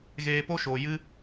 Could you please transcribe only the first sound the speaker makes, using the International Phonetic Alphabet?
ɣ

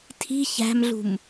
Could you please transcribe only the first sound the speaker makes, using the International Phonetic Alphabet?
tʰ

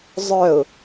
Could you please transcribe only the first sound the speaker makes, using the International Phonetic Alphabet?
zˤ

